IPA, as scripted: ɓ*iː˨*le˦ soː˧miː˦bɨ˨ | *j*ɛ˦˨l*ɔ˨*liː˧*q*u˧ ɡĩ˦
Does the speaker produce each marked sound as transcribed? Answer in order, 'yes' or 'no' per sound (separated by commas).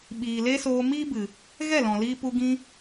yes, no, no, no